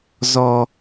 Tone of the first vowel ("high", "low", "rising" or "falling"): high